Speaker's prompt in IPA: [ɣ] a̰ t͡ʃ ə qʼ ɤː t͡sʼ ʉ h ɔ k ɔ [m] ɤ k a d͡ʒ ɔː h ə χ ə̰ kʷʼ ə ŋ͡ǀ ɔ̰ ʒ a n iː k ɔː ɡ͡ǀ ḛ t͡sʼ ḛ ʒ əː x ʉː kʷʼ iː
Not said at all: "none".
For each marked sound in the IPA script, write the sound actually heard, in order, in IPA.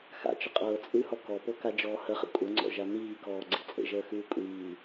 x, p

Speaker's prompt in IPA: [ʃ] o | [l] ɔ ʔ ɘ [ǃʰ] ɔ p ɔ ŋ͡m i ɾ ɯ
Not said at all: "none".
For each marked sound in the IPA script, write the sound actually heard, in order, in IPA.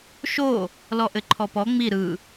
ʃ, l, ǃʰ

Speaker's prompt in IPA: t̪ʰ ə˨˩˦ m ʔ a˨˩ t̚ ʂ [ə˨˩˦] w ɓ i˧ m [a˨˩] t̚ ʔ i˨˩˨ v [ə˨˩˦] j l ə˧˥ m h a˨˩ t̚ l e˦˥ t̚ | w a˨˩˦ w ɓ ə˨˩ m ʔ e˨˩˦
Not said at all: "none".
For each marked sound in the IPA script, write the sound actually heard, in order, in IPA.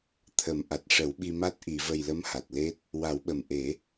ə˨˩˦, a˦˥, ə˨˩

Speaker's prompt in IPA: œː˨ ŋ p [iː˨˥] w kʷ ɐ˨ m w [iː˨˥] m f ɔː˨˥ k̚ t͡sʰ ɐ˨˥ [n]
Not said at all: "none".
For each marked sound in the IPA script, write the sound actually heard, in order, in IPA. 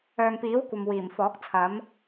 iː˨˥, iː˨˩, m

